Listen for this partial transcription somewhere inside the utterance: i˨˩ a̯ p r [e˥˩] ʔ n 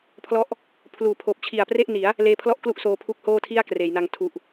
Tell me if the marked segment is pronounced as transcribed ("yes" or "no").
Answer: yes